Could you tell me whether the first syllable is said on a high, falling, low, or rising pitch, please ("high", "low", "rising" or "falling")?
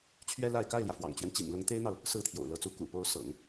high